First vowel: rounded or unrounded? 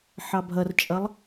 unrounded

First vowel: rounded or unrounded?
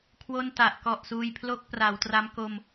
rounded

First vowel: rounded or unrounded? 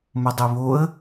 rounded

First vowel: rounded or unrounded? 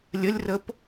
unrounded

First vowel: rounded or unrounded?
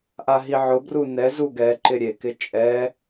unrounded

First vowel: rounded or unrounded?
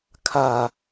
unrounded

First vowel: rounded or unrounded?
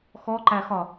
rounded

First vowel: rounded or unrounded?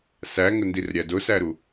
unrounded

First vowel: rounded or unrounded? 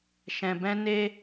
unrounded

